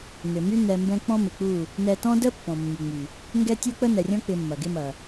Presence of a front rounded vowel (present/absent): present